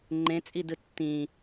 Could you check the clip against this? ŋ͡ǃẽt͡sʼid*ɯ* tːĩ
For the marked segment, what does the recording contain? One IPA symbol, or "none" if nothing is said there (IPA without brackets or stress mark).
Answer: ɯ